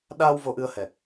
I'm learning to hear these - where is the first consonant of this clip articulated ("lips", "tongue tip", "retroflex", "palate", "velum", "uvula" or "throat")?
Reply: tongue tip